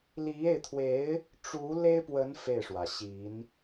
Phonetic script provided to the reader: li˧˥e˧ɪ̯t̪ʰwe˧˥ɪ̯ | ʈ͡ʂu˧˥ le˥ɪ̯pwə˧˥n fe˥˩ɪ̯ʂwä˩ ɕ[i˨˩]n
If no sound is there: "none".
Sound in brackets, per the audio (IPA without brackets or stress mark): i˧˥